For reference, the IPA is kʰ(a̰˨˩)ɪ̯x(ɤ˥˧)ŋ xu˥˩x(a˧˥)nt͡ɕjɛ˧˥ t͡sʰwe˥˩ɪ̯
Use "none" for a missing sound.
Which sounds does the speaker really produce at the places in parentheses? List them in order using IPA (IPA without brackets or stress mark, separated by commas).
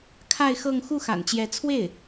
a˥˧, ɤ˥˧, a̰˨˩